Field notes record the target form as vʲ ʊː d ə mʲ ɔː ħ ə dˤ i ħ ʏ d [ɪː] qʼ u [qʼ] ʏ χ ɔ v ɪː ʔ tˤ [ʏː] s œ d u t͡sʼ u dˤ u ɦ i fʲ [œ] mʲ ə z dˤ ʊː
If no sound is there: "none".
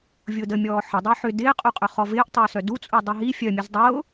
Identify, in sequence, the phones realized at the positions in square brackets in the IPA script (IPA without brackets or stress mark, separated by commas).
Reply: ɪː, qʼ, ʏː, œ